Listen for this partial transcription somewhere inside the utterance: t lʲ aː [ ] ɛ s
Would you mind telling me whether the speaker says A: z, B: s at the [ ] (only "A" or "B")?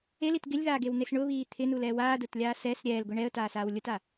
B